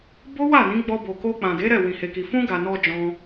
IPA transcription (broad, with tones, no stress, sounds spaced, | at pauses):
b o˦ w a˦˨ n ĩ˨˦ ɡ͡b ɔ˧ b o˨ k o˧ k͡p ã˨ d e˨˦ ɾ ɛ˦˨ w ĩ˨ h e˨ k i˨ f ũ˧ ɡ a˨ n ɔ˧ d͡ʒ ɔ̃˧